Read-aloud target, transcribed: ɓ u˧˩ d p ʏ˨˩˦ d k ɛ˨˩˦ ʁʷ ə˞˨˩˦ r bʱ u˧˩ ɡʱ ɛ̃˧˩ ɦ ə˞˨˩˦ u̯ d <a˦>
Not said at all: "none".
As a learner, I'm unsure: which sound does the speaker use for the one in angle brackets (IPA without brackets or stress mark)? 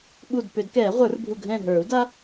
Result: a˦